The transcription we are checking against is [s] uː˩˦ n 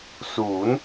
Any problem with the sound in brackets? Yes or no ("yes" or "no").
no